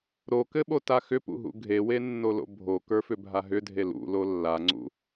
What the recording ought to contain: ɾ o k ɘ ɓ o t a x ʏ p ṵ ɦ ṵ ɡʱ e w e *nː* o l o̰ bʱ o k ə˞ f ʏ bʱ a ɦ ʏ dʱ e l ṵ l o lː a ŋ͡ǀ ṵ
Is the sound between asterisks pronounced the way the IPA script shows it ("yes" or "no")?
yes